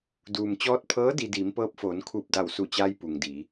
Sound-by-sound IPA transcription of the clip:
d uː˩ m t͡ɕ ɔː˧ t̚ pʰ ɤː˧˥ d i˧ d iː˩˧ m p ɤː˧ p̚ f oː˩˧ n kʰ uː˧˩ p̚ d a˧˩ w s u˧˩ t͡ɕ aː˧ j p u˩ ŋ d iː˩˧

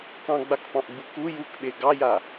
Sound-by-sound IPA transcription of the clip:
k ɑ̃ ɡ͡b a k p ɑ̃ ʔ ɡ͡b u k u j u k ɓ e ɡ ɑ j a

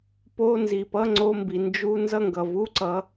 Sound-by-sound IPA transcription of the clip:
p o˧˥˧ n z i˩ p ʌ˧˥˧ ŋ͡ǀ o˧˥˧ m b i˩ n d͡ʒ u˧˥˧ n z ʌ˥˨ ŋ ɡ ʌ˩ v u˧˥˧ ǀ ʌ˨˦

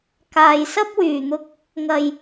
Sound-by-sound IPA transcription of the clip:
k aː˨ j s ɐ˥ p̚ w yː˨˩ n̪ ʊ˧ k̚ | ŋ ɐ˨ j

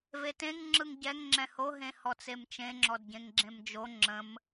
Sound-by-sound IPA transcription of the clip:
v e t ẽ ŋ ŋ͡ǁ ɯ ŋ ɟ ɛ ŋ ŋ͡ǁ ɛ̃ h o ɦ ẽ h ɔ t͡s e m t͡ʃ ẽ ŋ͡ǁ ɔ d ɟ ẽ ŋ ɡ͡ǁ ẽ m d͡ʒ o ŋ͡ǁ ə̃ m

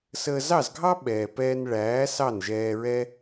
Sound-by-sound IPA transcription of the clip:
s əː˧ z ɑ˥˩ z ɡʱ ɑ˥ ɓ ɛː˩ p ɛː˧ n ɭ æː˩˥ s ɑ˥˩ n ʒ ɛː˧ ɹ ɛ˥

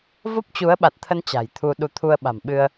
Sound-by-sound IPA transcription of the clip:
v o˦˥ p̚ t͡ɕ u˨˦ ə̯ ɓ a˨˩ t̚ t̪ʰ ə˧ n t͡ɕ a̤˨˩ j t̪ʰ u˧ ɗ u˨˦ t̪ʰ u˧ ə̯ ɓ a̤˨˩ m ɓ ɨ˧ ə̯

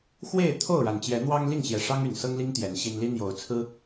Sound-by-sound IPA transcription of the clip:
x w e˥˨ ɪ̯ t̪ʰ o˥˨ ʊ̯ ɻ a˨˩ n t͡ɕ j ɛ˨˦ n̪ w ɑ˦ ŋ l i˥˨ ŋ ɕ j ɛ˨˩ ʂ ɑ˦ ŋ y˨˩ n s ɤ˦ ŋ l i˦ ŋ t̪ j ɛ˨˦ n ɕ i˦ n l i˦ n̪ j o˨˦ ʊ̯ t͡sʰ ɹ̩˦

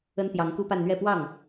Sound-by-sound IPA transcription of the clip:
ə˥ n t̪ j ɑ˧˥ ŋ k u˥ p a˥˧ n n̪ ɥ ɛ˥˧ p w ɑ˥˩ ŋ

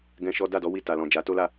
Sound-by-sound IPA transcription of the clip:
ɡ ɛ̃˧ ʃ ɔ˦ d a˦˨ d ɔ˨˦ w i˧ t a˨ l ɔ̃˨ d͡ʒ a˨˦ t o˦ l a˦˨

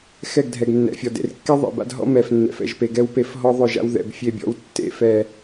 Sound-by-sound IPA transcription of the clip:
x ɛ˦˨ ɡ dʱ ɛ˨ ɡ nː ɛ̰˨ fʲ ɔ˨ d ḛ˨ r kː e˦ ðˤ ḛ˨ b a̰˦ d ɦ ɔ̰˦ m ɛ˨ f nː ɛ̰˨ f ɛ̰˨ ʒ p e˨ ɡ ɛ˦ w p e˨ f ɦ ɔ˦ ðˤ ʏ˦˨ ʒ a̰˦ w ð ɛ̰˨ b fʲ e˦˨ bʲ ɔ̰˦ w tː ḛ˦ f ɛ˦

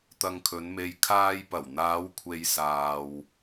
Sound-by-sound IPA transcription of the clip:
t̪ ɐ˧ ŋ kʰ ɵ˨˧ n m e˧ j kʰ aː˧ j p ɐ˨˩ w n̪ aː˨˧ w kʷʰ e˧ j s aː˧ w

